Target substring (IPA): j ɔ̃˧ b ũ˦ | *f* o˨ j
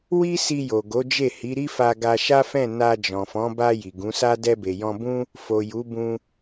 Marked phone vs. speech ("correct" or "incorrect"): correct